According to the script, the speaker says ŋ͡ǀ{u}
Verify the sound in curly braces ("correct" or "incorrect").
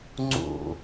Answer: incorrect